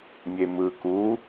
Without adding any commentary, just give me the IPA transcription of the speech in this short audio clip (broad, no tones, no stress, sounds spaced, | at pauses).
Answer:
mʲ e m ɯ k u